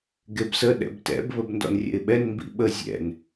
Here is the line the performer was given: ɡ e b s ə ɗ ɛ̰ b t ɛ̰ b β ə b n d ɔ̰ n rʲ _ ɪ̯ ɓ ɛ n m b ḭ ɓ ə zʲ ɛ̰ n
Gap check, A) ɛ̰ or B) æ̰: A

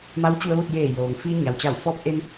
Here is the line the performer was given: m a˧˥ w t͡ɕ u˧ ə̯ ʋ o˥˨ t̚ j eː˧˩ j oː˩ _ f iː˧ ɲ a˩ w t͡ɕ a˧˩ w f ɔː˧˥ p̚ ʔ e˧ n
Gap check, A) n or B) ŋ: B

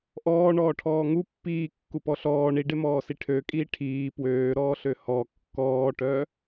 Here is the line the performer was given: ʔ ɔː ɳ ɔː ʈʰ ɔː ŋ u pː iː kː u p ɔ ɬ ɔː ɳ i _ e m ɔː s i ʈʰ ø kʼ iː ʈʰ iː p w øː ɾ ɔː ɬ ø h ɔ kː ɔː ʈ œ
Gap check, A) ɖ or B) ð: A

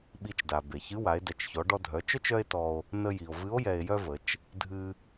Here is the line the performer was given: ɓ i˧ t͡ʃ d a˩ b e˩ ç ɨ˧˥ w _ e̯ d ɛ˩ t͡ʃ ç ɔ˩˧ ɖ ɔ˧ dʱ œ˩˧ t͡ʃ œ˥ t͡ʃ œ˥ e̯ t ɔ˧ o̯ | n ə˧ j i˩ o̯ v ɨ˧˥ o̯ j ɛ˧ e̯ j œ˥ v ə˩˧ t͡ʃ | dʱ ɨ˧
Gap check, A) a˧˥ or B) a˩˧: B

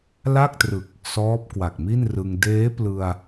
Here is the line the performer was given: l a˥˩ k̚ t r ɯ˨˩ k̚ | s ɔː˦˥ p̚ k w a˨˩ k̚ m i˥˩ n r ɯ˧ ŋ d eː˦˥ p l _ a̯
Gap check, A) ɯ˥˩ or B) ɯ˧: B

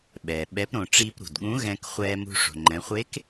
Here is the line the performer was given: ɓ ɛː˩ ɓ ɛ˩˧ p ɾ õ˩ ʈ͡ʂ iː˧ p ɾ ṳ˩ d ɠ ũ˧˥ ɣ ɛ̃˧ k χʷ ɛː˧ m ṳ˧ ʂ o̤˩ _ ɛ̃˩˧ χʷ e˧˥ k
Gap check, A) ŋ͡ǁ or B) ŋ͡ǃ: B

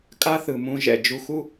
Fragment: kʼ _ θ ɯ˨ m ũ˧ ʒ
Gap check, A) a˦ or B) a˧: A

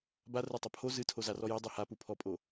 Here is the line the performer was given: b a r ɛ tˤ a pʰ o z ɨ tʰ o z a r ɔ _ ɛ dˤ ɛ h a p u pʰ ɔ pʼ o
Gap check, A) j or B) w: A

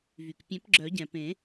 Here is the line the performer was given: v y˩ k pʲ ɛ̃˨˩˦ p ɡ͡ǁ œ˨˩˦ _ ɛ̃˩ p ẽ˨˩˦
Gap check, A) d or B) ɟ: B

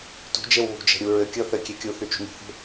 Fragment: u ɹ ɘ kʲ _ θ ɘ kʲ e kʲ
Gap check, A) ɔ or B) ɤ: B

